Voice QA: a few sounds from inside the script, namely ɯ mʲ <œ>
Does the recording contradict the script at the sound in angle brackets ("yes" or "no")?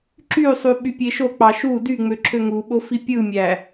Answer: yes